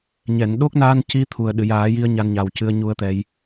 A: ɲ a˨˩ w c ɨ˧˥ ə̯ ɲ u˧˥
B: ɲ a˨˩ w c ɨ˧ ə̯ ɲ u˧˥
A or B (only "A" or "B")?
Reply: B